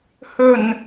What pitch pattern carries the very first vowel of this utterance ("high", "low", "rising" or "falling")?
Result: low